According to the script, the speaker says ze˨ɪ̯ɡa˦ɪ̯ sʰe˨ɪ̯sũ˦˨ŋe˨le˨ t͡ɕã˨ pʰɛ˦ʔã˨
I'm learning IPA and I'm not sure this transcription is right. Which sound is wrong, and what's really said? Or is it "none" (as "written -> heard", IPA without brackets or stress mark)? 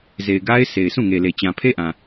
ɛ˦ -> e˦